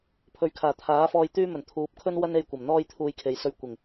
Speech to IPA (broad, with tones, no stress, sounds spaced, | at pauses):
pʰ ɵ˨˧ ɥ kʰ aː˨˩ t̪ʰ aː˨˥ f ɔː˧ j t̪ yː˥ m ɵ˨˩ n t̪ʰ uː˨˥ p̚ kʰ ɵ˥ n w ɐ˥ n e˧ j kʷ ɐ˨˩ m n̪ ɔː˥ j t̪ʰ uː˧ j kʰ e˨ j s ɵ˧ ɥ kʷ ɪ˨˩ ŋ